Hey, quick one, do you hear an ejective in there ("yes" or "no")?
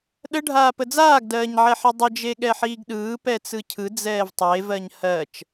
no